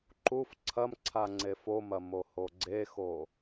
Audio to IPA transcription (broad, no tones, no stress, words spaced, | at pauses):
ǃuf ǀʰɐm ǀʰaŋ͡ǀefomɐ mohoɡ͡ǀexo